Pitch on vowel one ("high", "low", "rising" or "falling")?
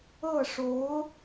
falling